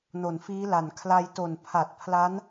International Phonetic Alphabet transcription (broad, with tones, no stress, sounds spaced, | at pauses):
n o˨˩ n f iː˦˥ l a˨˩ n kʰ l a˧ j t o˨˩ n pʰ a˨˩ t̚ pʰ l a˦˥ n